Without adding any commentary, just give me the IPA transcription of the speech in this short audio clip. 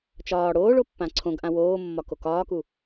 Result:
t͡ʃɒː ɽoːɭopːã ǀʰõɡʔã woːmːɒko kɒːku

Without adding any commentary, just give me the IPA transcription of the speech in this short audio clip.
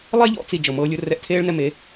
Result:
lˠɛ˦ʎɔ̰˧ t͡si˧ d͡ʒɤ˨mɤː˧lʲɯ˧ rɛ˧ʔtʰeː˦ɭnɛ˧me˨˦

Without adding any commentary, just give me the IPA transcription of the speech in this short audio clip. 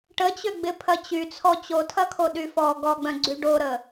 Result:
ʈət͡ɕøɡ͡bɪ pʰɐt͡ɕyt͡sʰɔ t͡ɕotʰɐkʰo ɗyfɔ ɡɔɡ͡bœ̃ ɡ͡ǀyɖoɾə

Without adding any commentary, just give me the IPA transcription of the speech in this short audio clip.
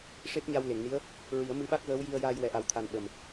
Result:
ʂe˦˥p̚ɲa˧wle˨˩˨ŋni˧˥ə̯ | ɹi˨˩˦ə̯ mɨ˧˥ɓa˦˥k̚ɣəː˧˥w ji˧ə̯jaː˧j wɛ˨˩ʔa˨˩˦wt̪ʰa˨˩n ɓə˨˩m

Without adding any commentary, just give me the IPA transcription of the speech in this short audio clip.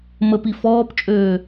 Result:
məpi fɔːpt͡ʃʼøː

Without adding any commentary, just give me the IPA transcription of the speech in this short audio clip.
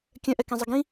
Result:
kʲœ̃ʔɛkẽzˤə ɡĩ

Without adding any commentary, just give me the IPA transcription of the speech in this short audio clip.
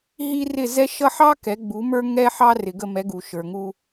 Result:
ɦi˥ rɪ˥˩zɛ˥ʃʌ˥ ħɑ˥ kɛ˩˥ɡ͡bu˩˥mə˞˥ ŋɛ˥ħɑ˥rɪ˩ ɡə˥˩mɛ˩˥ ɡu˩ʃə˞˩ŋu˧

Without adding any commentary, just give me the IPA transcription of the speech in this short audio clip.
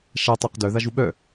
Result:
ʃa tˤɜqdœ ðaʒuɓœ

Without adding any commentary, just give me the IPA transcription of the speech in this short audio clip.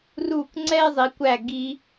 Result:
ru˦˨kŋ͡ǀɛ˥ɪ̯zˤi˨˦kʷæ˦˨ ɡi˥

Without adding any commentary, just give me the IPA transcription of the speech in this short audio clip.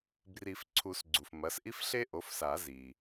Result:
bri˨˩˦fǀʰu˨˩˦sɡ͡ǀu˩f mɐ˩˥sʔi˥fɬe˥ ʔo˩˥fsa˨˩˦ zi˩

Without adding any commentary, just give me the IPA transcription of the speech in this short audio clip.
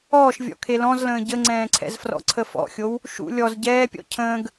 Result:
ɔːʃvʲɔ̰ kʰelɔ̃zlə̃ː ɟəŋ͡ǀɛ̃ːǀʰɛ̰zfrɔ̰ ǀʰəfɔ̰xʲow | ʃṵ lʲɔz ɟɛːpʲɔ̰ cʰə̃ːɡ

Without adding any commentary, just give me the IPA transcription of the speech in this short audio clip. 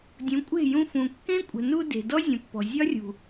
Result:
dʲũ˨˦kʷʼe̤˦˨jũ˧fũ˨ kːẽ˦kʷʼə̤˨nu˧ de̤˨ dɔ˦zʲə̃˨pːɔ̤˨ zʲɒ˦rʲṳ˨

